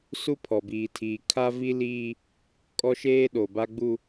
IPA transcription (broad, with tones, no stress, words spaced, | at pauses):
su˦pʰɔ˨ biː˨tʰiː˨ kʰa˦vi˦ liː˦ | kʼɔ˦ʃeː˦ɗo˨ ba˦ɡ͡bu˦